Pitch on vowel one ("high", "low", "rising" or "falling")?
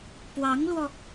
rising